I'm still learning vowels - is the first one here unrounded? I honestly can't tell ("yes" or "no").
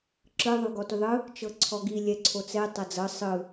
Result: yes